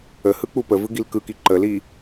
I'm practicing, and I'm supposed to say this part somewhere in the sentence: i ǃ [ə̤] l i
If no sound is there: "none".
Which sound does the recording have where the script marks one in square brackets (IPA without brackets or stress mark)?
ə